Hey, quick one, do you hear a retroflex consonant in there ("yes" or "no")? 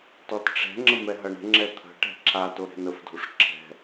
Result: yes